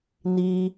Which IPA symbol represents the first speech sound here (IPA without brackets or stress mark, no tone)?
n